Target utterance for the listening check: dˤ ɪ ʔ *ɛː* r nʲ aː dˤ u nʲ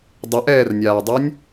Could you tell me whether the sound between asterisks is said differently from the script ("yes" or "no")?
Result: no